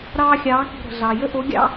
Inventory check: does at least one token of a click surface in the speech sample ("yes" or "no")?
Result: no